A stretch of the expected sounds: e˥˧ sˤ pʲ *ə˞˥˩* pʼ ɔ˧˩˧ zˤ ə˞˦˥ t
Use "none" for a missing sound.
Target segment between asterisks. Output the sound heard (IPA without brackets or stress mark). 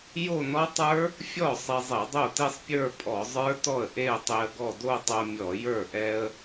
ə˞˥˧